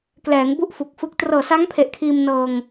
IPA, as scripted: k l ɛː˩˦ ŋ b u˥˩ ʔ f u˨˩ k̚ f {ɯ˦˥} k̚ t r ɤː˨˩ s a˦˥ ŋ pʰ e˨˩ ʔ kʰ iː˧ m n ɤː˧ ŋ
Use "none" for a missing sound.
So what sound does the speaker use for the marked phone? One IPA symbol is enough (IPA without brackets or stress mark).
ɯ˦˥